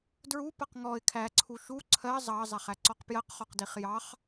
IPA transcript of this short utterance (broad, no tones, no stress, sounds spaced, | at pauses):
d ɹ u p ʌ q ŋ ɔ ɪ̯ kʰ æ ǀʰ u ʃ u ǀʰ ɜ zˤ ɑ zˤ æ χ æ ǀ ɔ q p j ɜ q χ ɔ q d i χ j ɑ χ